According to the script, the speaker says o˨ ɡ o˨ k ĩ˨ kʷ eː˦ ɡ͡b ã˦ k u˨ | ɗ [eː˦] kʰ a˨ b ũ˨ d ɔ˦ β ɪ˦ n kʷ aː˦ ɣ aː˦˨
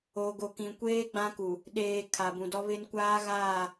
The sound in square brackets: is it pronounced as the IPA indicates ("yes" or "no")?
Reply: no